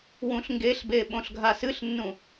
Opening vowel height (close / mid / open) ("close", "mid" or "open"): close